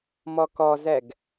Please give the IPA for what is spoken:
m ɔ k ɔ z ɛ ɡ

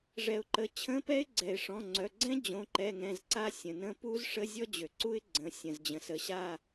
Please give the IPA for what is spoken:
ʐ ɛ˩ ʊ̯ ǃ ə˩ t͡ɕʰ ə̃˧˥˧ p ɛ˦˥ ɪ̯ ɡ͡ǀ ɛ˩ ɪ̯ ʂ ɔ̃˩˧˩ ŋ͡ǀ œ˩˧˩ ɡ͡ǀ ɛ̃˦˥ d͡ʑ õ˩˧˩ ǃ ɛ˩˧˩ ŋ ɛ̃˩˧˩ z ǀ a˦˨ sʲ ə̃˩ n ə̃˦˨ p u˦˥ z ʂ ə˧˥˧ zʲ ɔ˦˥ d͡ʑ ø˩ ǀ u˦˥ ɪ̯ ɡ͡ǀ ə̃˩˧˩ sʲ ə̃˩ z d͡ʑ ə̃˩ s ə˩˧˩ ɕ a˦˨

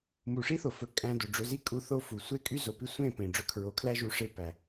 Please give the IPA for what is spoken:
m u˨ ʂ i˦ θ o˨ f ɵ˨ kʼ æ̃˧ d o˨ ɖ͡ʐ ɵ˧ z i˦ kʼ u˧ θ o˦ f u˨ sʷ e˦ kʼ y˦ z o˨ p i˦ sʷ ẽ˦˨ p ẽ˨ ɖ͡ʐ ɵ˧ kʰ ɹ o˨˦ kʰ l æ˦ ʒ u˧ ʂ e˦ p æ˨

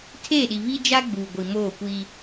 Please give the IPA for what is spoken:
tʰ eː˦˨ ɗ i˨ β i˦ d͡ʒ a˦ ɡ͡b uː˨ ɡʷ i˨ m oː˦˨ kʷ iː˦

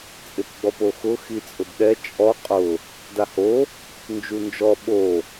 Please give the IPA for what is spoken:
t͡sʼ ɪ p ɡ͡b ɔ p o x ʊ x i t͡sʼ ʊ d ɗ ɛ t͡ʃʼ ɔ qʼ ʊ | d a h o | n d͡ʒ u n d͡ʒ ɔ ɓ o

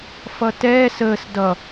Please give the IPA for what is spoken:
f ʌ t ɛː s əː s d ʌ

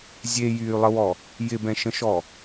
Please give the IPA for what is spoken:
zʲ e j yː lˠ ə w ɔ | j ɪ b ɛ̃ ʃ ə̃ ʃ ɔ

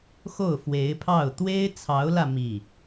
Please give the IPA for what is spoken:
x o˥˩ ʊ̯ f w e˧˥ ɪ̯ pʰ ɑ˥˩ ʊ̯ t̪ w e˥ ɪ̯ t͡sʰ ɑ˧˥ ʊ̯ l ä˧ m i˥˩

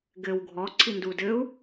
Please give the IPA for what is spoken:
ɡ ɘ w ɡʱ ɔ ǀʰ i n d u d ɘ u̯

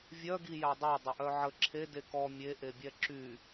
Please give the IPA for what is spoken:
vʲ œ ɡ i j a dˤ e dˤ ə ʔ œ ʕ ə ǁʰ e d e k ɔ mʲ e ʔ e bʲ ɛ ǁ y

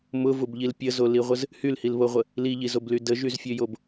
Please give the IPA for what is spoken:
m ʊ v ʊ b ʎ i l pʲ ə z o l i ʁʷ ə z | h y l h i l β o ʁʷ ə | l i ʎ i z o b l y d ə ʒ y z fʲ ø j o b

